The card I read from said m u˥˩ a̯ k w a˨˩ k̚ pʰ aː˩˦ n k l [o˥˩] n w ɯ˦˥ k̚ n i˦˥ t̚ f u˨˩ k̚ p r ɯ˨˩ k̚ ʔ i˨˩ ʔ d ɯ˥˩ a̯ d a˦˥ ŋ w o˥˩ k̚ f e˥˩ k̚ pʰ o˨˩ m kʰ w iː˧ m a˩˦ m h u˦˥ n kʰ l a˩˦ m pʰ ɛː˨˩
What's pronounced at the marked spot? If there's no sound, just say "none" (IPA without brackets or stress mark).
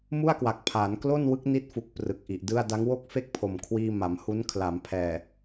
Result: o˥˩